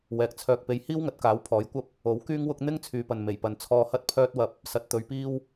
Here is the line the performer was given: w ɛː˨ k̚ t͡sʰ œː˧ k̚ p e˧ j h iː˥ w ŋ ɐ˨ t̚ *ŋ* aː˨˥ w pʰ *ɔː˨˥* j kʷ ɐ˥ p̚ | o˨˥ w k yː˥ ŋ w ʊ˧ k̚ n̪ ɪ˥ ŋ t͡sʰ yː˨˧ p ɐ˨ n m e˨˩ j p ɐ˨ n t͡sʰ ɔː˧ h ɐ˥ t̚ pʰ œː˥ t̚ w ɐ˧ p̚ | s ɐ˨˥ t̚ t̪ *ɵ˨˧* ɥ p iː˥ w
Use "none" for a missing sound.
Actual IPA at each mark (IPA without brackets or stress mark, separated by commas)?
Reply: k, ɔː˨˥, ɵ˨˧